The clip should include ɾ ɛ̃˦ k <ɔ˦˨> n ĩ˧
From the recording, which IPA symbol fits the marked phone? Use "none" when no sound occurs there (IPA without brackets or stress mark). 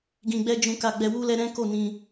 o˦˨